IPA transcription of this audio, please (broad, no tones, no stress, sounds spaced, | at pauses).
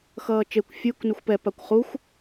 x ʌː t͡ʃ e kʷ fʲ u k n u xʷ p ɛ p a kʷ χ u xʷ